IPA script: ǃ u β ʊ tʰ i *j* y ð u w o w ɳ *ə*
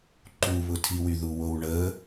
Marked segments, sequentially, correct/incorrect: incorrect: w, correct

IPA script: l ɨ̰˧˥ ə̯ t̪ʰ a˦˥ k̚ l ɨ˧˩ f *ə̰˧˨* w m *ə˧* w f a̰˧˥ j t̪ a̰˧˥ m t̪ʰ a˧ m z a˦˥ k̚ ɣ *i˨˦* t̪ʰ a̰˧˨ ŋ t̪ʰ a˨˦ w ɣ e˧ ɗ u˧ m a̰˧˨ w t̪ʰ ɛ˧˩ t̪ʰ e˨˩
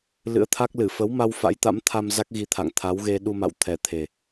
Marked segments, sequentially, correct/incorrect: incorrect: ə˨˦, incorrect: a˧, correct

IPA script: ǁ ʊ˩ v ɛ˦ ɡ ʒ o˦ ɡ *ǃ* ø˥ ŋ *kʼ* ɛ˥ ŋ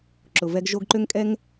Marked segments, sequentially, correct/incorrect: correct, correct

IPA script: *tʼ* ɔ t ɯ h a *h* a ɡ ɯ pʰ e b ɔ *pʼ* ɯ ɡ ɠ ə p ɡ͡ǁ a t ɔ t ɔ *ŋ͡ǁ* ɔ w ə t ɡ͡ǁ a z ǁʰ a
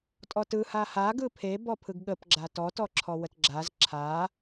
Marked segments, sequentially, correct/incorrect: correct, correct, incorrect: pʰ, incorrect: ǁʰ

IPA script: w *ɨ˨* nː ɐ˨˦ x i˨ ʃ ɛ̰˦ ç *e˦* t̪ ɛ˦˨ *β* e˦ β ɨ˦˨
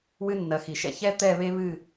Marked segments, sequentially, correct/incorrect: incorrect: ɨ˦, incorrect: ɛ˦, correct

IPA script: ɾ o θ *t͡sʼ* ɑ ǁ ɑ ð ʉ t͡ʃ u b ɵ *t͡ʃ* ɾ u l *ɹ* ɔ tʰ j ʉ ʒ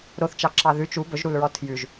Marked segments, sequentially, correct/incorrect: incorrect: t͡ʃ, incorrect: ʒ, correct

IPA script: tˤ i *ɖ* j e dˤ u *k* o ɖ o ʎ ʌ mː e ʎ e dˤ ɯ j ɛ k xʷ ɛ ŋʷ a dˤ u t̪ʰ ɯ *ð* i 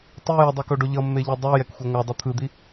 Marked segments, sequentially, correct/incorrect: incorrect: none, correct, incorrect: d̪

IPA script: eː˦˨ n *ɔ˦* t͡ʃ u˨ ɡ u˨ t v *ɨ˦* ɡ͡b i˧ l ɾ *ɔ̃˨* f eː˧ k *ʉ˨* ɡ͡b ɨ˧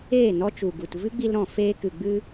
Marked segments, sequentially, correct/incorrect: correct, correct, correct, incorrect: ɨ˨

